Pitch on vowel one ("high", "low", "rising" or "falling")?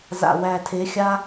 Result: low